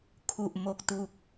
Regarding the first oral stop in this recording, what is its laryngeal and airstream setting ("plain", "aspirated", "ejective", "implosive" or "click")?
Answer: aspirated